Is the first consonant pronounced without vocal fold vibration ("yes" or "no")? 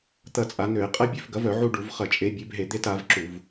yes